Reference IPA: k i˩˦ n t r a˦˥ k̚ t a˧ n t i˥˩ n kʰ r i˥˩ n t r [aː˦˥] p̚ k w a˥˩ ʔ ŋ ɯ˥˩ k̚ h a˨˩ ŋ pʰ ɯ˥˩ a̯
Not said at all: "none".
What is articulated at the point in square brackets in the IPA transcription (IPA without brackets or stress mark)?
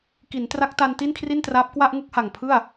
aː˦˥